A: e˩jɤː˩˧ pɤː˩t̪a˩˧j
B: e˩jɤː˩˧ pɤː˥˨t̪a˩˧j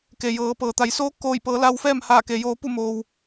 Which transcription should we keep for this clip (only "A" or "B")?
A